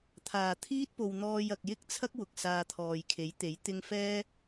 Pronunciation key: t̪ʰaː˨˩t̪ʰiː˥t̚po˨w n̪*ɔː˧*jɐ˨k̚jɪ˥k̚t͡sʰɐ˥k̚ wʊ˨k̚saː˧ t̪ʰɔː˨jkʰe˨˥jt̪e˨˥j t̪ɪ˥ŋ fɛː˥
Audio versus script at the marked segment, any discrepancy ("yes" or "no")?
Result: no